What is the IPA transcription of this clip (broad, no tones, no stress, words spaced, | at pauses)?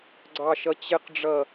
ɡ͡ǀɑʃʌt͡ɕɪqɖ͡ʐʌ